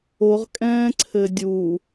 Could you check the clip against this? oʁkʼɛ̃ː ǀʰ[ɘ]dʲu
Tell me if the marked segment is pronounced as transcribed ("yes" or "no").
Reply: yes